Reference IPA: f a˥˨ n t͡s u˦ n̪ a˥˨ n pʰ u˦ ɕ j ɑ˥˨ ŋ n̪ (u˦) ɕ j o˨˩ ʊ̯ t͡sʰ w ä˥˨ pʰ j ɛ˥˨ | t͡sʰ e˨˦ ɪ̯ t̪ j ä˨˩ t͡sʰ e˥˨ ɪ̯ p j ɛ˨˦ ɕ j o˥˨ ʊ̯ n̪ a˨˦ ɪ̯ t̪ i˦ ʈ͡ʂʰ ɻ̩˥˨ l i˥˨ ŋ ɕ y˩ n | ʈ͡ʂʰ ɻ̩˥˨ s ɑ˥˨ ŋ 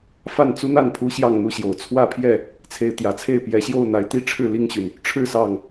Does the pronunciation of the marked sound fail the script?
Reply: yes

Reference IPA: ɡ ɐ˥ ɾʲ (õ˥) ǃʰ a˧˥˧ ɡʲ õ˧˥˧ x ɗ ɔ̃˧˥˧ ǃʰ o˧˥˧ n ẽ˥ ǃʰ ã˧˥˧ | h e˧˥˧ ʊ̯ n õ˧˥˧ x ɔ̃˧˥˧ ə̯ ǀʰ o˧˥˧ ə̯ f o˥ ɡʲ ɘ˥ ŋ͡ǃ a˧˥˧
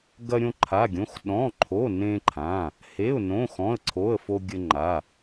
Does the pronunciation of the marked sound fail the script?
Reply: no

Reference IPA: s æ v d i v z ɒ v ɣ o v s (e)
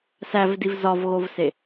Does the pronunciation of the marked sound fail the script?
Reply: no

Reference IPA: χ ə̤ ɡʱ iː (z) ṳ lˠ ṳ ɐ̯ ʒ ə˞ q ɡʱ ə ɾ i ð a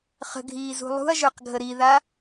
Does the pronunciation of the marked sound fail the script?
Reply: no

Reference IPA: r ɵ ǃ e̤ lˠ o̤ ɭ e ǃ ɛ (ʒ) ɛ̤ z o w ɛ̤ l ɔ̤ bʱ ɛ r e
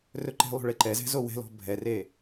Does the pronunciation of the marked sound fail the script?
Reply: yes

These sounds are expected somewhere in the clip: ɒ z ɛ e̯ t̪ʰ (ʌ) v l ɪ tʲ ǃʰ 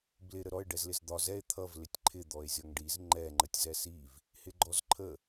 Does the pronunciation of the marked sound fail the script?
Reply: no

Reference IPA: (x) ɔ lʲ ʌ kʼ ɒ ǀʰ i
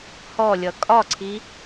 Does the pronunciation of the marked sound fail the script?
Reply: yes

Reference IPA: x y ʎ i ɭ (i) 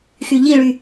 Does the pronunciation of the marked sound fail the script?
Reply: yes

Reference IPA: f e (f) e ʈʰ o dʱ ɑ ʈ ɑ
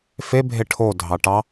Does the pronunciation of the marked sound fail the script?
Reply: yes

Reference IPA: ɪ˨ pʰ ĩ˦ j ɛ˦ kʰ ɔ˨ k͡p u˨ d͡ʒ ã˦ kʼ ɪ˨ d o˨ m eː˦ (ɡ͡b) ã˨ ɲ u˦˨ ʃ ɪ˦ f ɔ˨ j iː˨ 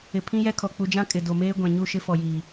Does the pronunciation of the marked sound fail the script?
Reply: yes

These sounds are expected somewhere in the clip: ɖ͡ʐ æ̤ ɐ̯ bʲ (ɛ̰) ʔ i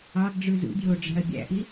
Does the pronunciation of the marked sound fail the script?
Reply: yes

